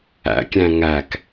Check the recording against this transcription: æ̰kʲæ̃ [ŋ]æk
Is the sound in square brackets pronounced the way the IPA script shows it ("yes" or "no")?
yes